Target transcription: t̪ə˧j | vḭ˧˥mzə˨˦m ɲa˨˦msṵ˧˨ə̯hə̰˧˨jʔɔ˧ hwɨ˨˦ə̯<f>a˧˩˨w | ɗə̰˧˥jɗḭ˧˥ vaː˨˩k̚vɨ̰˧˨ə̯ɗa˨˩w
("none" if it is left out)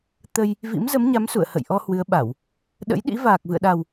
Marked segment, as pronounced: ɓ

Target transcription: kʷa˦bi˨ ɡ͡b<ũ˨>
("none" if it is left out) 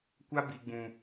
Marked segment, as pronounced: ũ˨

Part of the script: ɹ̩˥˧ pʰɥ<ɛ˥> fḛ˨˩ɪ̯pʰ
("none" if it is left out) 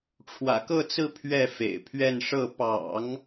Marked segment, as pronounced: ɛ˥˩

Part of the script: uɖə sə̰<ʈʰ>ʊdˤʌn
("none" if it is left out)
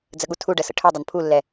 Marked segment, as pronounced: ʈʰ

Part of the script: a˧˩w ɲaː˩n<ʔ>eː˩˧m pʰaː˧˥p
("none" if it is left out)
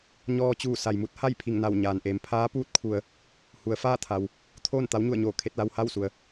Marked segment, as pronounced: ʔ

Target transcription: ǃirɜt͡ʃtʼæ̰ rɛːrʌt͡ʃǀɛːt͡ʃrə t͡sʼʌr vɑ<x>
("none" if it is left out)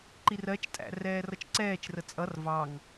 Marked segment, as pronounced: ŋ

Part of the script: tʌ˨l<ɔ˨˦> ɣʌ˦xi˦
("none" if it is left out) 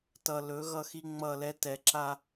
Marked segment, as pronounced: ɵ˨˦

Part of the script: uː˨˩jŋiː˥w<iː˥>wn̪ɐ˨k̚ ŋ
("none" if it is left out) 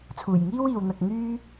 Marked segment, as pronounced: iː˨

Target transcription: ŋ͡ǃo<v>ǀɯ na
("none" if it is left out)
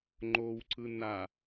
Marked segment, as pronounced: w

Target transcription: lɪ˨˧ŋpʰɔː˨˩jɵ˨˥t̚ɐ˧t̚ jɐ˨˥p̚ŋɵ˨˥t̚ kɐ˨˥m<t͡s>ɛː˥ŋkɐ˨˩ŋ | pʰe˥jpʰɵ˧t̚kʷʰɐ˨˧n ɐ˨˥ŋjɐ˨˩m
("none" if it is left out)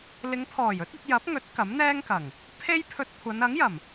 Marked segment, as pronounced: n̪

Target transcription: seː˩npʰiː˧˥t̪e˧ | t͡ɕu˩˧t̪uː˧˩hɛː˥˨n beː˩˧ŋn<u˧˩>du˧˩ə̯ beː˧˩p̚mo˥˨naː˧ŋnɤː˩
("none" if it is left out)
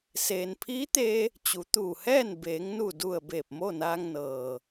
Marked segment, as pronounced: u˧˩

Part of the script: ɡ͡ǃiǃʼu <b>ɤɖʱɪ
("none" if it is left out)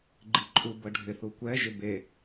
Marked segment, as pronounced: b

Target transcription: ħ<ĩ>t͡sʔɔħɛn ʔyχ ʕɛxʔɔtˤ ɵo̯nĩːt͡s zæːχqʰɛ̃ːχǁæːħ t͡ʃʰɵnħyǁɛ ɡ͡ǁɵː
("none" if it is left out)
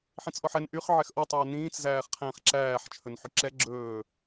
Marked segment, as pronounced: ĩ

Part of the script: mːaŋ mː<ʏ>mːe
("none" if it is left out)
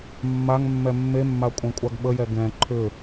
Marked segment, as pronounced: ɛ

